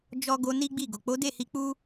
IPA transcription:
d͡ʒ ɔ˧ ɡ o˧ n i˦ ɡ͡b i˦˨ ɡ o˨ k͡p o˨˦ d e˦˨ h i˧ k͡p u˦

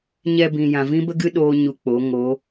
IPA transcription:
ɲ ɛ˧ b ĩ˨ j ã˨ v ĩ˦ b ə˦ ɡ ɨ˦ ɗ oː˦ ɲ u˧ k͡p o˨˦ ŋ o˨˦

